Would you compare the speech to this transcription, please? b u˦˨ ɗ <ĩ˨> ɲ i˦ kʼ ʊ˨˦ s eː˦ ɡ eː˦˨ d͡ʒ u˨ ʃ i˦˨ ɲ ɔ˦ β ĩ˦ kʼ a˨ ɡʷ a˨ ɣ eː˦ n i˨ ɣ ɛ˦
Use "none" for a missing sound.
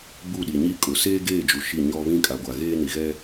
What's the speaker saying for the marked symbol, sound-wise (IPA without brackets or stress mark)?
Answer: i˨